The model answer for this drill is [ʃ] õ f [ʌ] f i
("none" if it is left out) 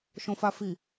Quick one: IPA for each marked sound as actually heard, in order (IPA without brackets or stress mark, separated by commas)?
ʃ, a